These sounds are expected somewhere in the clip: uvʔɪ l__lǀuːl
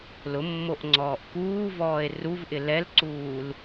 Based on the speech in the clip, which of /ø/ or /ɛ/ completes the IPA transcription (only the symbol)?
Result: ɛ